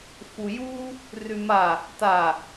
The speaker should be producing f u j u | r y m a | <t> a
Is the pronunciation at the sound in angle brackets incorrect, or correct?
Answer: correct